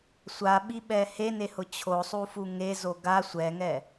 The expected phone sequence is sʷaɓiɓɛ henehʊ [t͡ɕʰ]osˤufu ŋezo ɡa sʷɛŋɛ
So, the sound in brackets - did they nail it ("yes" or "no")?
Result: yes